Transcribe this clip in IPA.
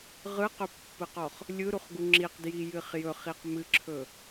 ʁ ɯ q ɵ pː ɯ q ɔ χ | lʲ ɯ ɾ u χ ɡ u ŋ͡ǁ i q d j i j ɨ χ j ɵ χ i q m ɨ ǁʰ ɵ

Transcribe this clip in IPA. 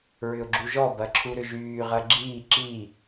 ɹ ʏ ʊ̯ ɡ͡ǁ u ʒ ɔ b ɐ ǁʰ u ɾ ʏ ʒ yː ʁ ɐ ɡ͡ǁ iː ǁ i

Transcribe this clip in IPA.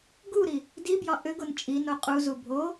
ɡ u ɾ i | d i b j ɒ ʔ ʏ ɡ o n t͡ʃʼ i n o qʼ u z u bʱ o

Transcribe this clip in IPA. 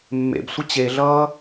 mː ḛ b sʷ ə t͡ɕ e ɮ ʌː

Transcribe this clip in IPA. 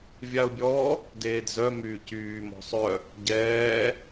vʲ a ʊ̯ bʲ ɔ | d eː d z œ m yː c yː m ɔ̤ sˤ œ | ɟ ɛː

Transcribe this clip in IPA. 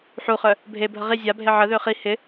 ħ u χ œ | bʱ e bʱ ə ʁ i zʲ a bʱ e ʕ ə ð ø χ i h ɪ

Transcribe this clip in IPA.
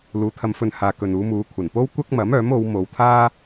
l uː˨˧ t̪ʰ ɐ˧ m f ɵ˧ n h aː˨ k ɵ˨ n uː˨˧ m uː˨˧ kʷʰ ɐ˨˩ n p o˥ w kʷ ɐ˥ k̚ m ɐ˨˥ m œː˨˥ m o˨˧ w m o˨ w t̪ʰ aː˥

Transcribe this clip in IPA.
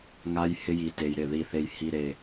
ŋ a˧ j h ɪ˧ j i˨ t e˨ j ɾ ɪ˦˨ ð i˨ θ e˨ j h i˨ ɾ e˨

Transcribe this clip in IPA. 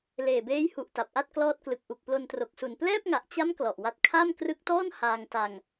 l eː˨˩ b eː˦˥ j h u˨˩ ʔ t a˨˩ p̚ ʔ a˥˩ t̚ k l ɔː˦˥ t̚ k l ɯ˨˩ k̚ ʔ u˨˩ k̚ p l o˧ n t r o˨˩ k̚ s u˨˩ n p l ɛː˥˩ p̚ ŋ a˨˩ ʔ t͡ɕ a˦˥ m k l ɔ˨˩ ʔ w a˦˥ t̚ kʰ a˥˩ m k r ɯ˦˥ k̚ t ɔː˥˩ n h aː˧ ŋ t a˧ ŋ

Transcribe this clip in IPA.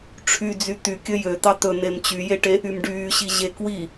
ʈ͡ʂʰ y d͡z y t̪ y kʲ ɵ j ø t̪ ɑ t̪ ɵ n̪ e m t͡ɕ y j e ʈ e | y m ɖ yː ɕ i ʑ e k w i

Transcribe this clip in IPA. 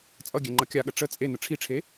t͡sʼ ʌ ɡʲ ɛ ŋ͡ǃ ʌ kʲ a ɠ ə ʈ͡ʂ ə t͡sʼ e n ə ʈ͡ʂʰ i ʈ͡ʂʰ e

